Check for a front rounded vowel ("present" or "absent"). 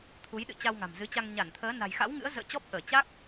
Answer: absent